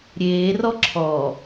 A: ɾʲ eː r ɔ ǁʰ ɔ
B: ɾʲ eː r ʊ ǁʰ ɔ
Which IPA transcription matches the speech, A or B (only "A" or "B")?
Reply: A